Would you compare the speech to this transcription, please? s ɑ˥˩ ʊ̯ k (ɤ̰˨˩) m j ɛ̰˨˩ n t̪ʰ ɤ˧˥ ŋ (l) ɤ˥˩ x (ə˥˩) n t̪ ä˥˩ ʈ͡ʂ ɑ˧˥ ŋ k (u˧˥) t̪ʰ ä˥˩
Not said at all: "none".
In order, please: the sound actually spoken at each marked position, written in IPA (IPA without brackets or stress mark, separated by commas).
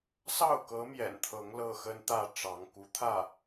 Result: ɤ˧˥, l, ə˥, u˧˥